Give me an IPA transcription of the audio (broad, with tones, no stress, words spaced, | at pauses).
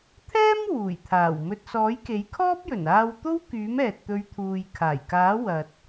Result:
t̪ʰɛː˥m wuː˨˩jt̪ʰaː˨˩wmɵ˧t̚ sɔː˨˥jke˨˥jkʰɔː˥p̚jɵ˨˩n aː˧wt̪o˥wkyː˨˥m ɛː˨t̚t̪ɵ˨˧ɥ t̪ʰuː˨jkʰaː˨˩jkaː˨˥wɐ˨t̚